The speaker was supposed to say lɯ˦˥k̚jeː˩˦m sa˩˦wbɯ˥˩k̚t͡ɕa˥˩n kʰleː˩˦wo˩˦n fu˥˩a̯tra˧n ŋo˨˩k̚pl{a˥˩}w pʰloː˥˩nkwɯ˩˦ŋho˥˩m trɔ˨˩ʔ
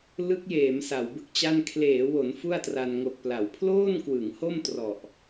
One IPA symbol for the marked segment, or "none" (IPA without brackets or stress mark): a˩˦